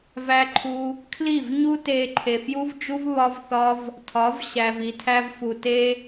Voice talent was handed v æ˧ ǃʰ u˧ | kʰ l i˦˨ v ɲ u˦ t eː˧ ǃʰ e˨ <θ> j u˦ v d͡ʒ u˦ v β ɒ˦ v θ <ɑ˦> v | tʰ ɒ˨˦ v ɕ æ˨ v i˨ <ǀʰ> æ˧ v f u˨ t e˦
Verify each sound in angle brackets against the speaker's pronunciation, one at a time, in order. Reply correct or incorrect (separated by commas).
incorrect, incorrect, incorrect